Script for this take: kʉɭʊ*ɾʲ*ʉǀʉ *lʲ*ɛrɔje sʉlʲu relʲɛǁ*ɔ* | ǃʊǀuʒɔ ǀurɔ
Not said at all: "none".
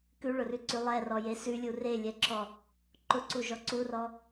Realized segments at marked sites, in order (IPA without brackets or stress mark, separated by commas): r, lˠ, ɔ